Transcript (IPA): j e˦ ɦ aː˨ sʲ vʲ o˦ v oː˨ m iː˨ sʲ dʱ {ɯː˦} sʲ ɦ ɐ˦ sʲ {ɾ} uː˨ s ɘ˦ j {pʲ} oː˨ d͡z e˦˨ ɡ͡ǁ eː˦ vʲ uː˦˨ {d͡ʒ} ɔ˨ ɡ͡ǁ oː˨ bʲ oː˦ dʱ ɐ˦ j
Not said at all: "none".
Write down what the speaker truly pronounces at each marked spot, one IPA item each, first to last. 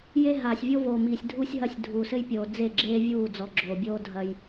uː˦, dʱ, pʲ, d͡z

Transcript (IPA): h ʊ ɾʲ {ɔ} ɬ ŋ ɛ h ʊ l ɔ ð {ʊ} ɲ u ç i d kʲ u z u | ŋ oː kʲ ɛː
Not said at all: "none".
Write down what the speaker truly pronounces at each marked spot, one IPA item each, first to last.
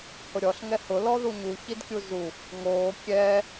ɔ, u

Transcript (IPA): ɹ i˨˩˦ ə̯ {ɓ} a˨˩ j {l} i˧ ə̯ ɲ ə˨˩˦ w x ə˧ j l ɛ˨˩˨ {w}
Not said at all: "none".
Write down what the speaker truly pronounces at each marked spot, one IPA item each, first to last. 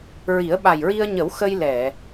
ɓ, ɹ, none

